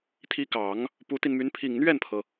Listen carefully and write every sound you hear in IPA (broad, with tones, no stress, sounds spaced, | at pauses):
t̪ʰ i˧˥ k ɑ˨˩˦ ŋ | p u˧˥ t̪ i˧ n m y˧˥ n pʰ i˨˩ ŋ n̪ ɥ ɛ˥˩ n pʰ ɤ˩